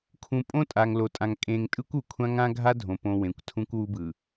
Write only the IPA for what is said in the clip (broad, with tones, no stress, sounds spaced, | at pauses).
kʰ ũ˨ pʼ õ˦ tʼ a˨ ŋ l o˨ tʼ ã˨ ŋ kʼ ẽ˨ ŋ tʼ ɯ˦ kʷ u˨ kʷʰ ã˦ ŋ ã˦ ɡʱ a˦ dʱ õ˨ p õ˨ w ẽ˨ kʷ tʰ ũ˦ kʷ w u˦ b ɯ˨